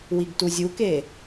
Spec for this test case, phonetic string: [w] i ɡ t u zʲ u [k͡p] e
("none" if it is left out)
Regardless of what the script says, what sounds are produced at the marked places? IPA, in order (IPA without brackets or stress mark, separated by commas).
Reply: w, k